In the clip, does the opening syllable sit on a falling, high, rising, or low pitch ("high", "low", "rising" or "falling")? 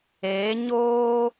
rising